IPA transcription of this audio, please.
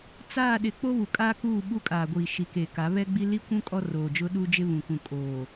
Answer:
t͡saː˦˨ɗɪ˨ k͡po˦βu˨kʼaː˦kuː˦˨ ɓu˦kʼaː˨ɡʷiː˨ ʃi˨ke˨ka˨˦ βɛ˦ɡ͡bi˦ li˦kʷũ˦ kʼɔ˦roː˨d͡ʒʊ˦ ɗuː˦d͡ʒɪ˦ βũ˨kũ˨ kʼoː˨

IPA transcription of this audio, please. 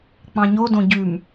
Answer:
k͡pɑ̃ɲodõ ɟʉm

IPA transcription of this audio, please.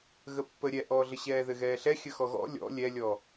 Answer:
ɣəpːə ɾʲɛʔɔːɮə ɕɛːðɘɣɛːɬɛ xʲəxɔɣɔ̰ lʲɔ̰ lʲɛlʲɔ

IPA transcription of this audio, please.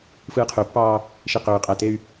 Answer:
fɯːqʰøpːɑː | ʃiqøː qʼætey̯

